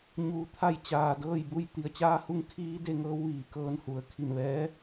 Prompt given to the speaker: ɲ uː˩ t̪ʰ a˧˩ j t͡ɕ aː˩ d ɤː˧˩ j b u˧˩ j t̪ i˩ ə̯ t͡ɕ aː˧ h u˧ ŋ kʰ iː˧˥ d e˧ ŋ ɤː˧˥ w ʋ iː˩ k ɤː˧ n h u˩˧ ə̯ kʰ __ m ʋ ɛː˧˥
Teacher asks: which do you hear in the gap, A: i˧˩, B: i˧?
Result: A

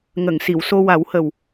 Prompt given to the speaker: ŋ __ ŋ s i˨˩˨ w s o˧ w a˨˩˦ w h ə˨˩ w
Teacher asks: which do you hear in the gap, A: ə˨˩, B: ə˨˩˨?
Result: B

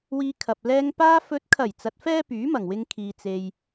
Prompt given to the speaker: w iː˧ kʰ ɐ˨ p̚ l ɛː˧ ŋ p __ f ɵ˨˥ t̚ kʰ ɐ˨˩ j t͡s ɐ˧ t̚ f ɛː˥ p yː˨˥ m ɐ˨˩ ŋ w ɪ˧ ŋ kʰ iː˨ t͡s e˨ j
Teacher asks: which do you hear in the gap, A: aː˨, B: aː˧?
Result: B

